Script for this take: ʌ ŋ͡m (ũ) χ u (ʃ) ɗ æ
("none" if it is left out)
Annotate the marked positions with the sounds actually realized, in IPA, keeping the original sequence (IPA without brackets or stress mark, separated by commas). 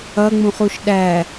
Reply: ũ, ʃ